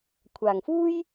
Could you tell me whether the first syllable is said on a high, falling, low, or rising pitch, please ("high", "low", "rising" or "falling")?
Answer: low